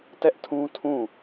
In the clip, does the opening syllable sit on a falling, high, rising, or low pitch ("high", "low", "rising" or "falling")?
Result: high